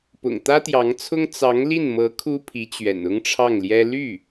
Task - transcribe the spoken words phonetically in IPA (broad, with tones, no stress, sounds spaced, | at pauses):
p ʊ̰˨˩ ŋ t̪ ä˥ t̪ j ɑ˧˥ ŋ t͡sʰ ʊ˥ ŋ t͡s ɑ˧˥ ŋ l i˥˩ n m ɤ˧˥ kʰ u˥ pʰ i˧˥ t͡ɕ ɥ ɛ̰˨˩ n ʊ˥ ŋ ʈ͡ʂʰ ɑ˥˩ ŋ l j ɛ˥ l y˥˩